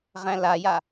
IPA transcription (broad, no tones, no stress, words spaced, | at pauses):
ʁæ̃laja